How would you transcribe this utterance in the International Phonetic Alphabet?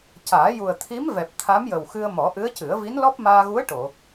caː˨˩˦ju˨˩ə̯t̪ʰi˧˥m vɛ˨˩p̚ t̪ʰa˧˥mjə˨˩wxɨ˧ə̯ mɔ˨˩˦ʔɨ˧˥ə̯cɨ˨˩˦ə̯ vi˧˥nlɔ˦˥p̚maː˧ɣu˧˥ə̯ ʈo˨˩˨

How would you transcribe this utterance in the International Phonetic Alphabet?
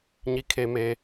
ɲi˩kʰe˩me˩

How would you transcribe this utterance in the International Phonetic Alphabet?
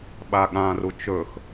ɓaɠãru t͡ʃɵx

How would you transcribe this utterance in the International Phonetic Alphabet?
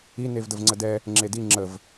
i nevdəvŋ͡ǀədɛ | ŋ͡ǁedi ŋ͡ǁəv

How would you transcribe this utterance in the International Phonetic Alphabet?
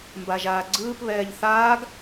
mbaʒaːɡ͡ǀɯːp βɛːʎθaːɡ

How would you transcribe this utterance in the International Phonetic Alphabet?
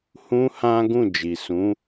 hũ˦hã˦ ɡũ˦˨d͡ʒi˨sũ˨˦

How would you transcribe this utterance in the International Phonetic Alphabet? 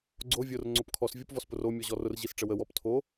ɡ͡ǀo vʲʊr ŋ͡ǀopkʰɔs vʲopvɔspʊro mʲɔʑɔrʊr ʑisʈ͡ʂəwə wɔptʰo

